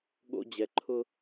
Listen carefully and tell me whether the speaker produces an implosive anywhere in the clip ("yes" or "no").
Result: yes